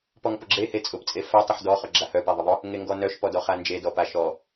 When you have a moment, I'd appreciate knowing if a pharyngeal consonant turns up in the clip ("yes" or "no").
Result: yes